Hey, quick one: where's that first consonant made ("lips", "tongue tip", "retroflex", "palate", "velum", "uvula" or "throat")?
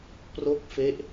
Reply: lips